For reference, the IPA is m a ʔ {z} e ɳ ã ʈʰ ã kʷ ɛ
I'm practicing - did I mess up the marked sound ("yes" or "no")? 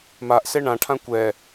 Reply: yes